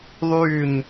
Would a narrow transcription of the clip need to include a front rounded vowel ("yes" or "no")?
yes